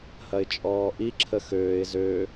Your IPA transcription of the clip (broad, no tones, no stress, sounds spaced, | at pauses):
h ɐ ɪ̯ t͡ʃʼ ɔː ʔ i ǁʰ ə x øː ɪ̯ z ø